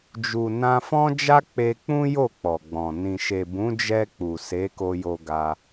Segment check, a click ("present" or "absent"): absent